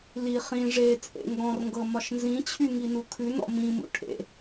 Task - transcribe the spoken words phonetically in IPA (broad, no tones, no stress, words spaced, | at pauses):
li χĩ ʐet͡sʼḛ ŋɡɔ̃rŋɡɤ mɒʃnzĩt͡ɕʰy ŋinukʰʉnɔ̰ mĩmṵ ʈʰḛ